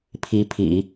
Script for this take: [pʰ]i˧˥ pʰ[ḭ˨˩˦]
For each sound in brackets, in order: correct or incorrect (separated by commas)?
correct, correct